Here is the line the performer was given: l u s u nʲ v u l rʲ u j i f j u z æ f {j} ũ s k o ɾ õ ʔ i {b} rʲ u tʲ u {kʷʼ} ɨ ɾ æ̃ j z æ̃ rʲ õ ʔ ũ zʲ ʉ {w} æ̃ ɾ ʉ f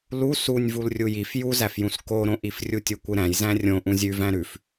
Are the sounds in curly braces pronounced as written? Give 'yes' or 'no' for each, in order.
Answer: yes, no, no, no

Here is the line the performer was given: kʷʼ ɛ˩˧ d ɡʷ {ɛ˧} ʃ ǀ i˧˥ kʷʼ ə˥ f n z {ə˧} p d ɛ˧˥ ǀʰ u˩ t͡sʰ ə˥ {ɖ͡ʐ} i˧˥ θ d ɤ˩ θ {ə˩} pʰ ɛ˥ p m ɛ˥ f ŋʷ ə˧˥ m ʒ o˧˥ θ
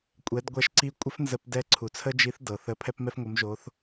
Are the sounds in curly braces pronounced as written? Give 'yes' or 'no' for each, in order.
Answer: yes, yes, no, no

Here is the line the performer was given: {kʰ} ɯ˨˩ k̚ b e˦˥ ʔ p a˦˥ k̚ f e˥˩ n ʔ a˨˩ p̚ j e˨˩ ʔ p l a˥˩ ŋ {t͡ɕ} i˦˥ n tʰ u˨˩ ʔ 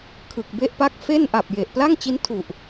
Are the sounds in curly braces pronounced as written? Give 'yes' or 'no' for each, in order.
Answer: yes, yes

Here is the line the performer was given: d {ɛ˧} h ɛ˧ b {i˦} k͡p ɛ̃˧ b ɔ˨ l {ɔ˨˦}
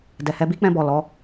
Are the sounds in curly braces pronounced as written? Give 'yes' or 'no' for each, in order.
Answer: no, yes, yes

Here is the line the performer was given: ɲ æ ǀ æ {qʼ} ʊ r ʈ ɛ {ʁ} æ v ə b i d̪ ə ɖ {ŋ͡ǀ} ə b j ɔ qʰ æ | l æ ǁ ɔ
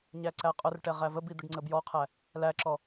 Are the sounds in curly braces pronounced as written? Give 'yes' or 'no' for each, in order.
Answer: yes, yes, yes

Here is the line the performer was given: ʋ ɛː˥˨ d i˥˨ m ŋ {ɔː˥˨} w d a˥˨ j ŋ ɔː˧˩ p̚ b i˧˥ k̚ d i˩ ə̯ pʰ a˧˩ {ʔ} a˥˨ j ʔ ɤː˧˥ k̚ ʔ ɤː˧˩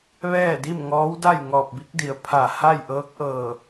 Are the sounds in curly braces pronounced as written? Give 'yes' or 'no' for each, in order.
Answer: no, no

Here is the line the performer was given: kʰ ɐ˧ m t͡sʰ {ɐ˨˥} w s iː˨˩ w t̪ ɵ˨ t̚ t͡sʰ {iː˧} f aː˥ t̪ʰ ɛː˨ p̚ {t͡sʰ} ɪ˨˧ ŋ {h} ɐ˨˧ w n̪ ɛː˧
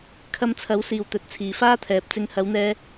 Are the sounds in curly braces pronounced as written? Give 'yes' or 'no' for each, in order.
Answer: yes, no, no, yes

